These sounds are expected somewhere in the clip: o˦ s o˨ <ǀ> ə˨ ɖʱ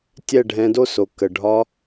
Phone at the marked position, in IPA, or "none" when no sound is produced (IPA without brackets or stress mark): k